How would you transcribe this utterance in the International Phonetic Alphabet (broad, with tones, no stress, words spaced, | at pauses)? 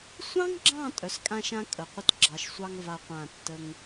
sʷɑ̃˦ŋɡ͡ǁɑ̃˦˨ tʼœ˨skʼã˦ʃã˦ kʼə˨qʷə˦t ɡ͡ǁɑ˨ʃsʷɑ˦ŋ va˦qʷã˦˨tːə˦ŋ